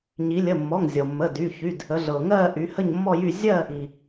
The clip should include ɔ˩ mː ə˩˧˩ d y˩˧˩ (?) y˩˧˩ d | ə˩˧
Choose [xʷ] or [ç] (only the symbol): ç